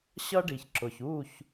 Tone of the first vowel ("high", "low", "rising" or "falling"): high